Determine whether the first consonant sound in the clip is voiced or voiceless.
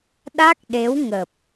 voiced